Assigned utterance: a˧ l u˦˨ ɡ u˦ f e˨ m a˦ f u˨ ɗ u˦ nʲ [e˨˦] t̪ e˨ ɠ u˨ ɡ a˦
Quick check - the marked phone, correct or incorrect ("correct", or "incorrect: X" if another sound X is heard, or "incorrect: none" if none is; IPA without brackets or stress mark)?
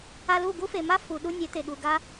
correct